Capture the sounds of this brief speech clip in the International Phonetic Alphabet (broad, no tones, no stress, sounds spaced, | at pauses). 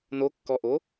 n o kː ɔ ʔ o